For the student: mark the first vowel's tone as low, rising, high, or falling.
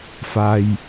low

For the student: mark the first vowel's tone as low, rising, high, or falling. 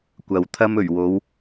low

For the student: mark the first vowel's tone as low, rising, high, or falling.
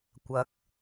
rising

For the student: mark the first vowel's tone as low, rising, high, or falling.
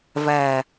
low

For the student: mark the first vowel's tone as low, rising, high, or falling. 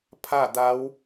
falling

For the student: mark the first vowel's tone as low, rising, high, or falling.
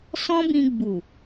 high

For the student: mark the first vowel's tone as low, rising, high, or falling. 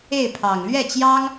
falling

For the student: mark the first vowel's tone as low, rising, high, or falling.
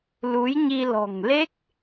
rising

